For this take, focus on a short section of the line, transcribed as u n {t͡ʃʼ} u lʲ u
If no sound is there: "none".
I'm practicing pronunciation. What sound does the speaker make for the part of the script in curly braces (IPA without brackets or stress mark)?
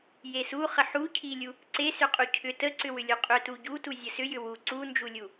d͡ʒ